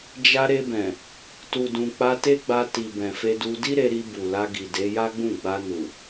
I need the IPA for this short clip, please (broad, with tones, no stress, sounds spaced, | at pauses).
d͡ʒ a˧ ɾ e˧ b ɛ̃˨ | t u˨ d ũ˨ k͡p a˧ t e˦ ɡ͡b a˧ t i˨ b ɛ̃˨ f e˧ d u˧ d i˦ ɾ e˧ ɾ i˧ b u˨ l a˧ ɡ i˨ d e˨˦ j a˦ ɡ͡b ũ˦˨ ɡ͡b a˧ n u˨